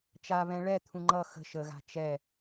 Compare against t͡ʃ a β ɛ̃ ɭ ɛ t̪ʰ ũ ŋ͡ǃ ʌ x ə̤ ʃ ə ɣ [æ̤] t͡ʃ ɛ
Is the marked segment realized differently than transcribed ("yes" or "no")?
yes